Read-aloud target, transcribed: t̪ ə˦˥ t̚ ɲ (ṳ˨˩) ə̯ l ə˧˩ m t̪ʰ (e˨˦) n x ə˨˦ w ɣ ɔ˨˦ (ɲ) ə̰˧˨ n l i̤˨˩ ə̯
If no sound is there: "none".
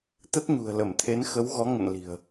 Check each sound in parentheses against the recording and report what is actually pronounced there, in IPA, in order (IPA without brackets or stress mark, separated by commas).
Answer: ṳ˨˩, e˨˦, ŋ